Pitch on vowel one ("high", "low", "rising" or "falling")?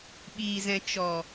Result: low